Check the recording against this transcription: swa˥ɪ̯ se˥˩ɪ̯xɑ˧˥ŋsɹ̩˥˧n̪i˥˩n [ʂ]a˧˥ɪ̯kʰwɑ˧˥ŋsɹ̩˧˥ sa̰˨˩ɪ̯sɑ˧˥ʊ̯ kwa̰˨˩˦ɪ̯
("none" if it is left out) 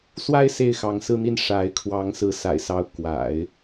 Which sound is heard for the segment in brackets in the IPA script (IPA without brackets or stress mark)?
ʂ